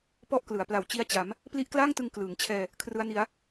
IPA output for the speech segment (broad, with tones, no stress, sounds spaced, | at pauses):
p ɔ˥˩ ʔ k l ɯ˩˦ a̯ p l a˨˩ w t͡ɕ i˦˥ a̯ t͡ɕ a˩˦ m | p l i˦˥ ʔ k l aː˥˩ ŋ t ɯ˧ ŋ k l ɯː˩˦ ŋ t͡ɕʰ ɛː˧ | kʰ r ɯ˦˥ a̯ n i˦˥ a̯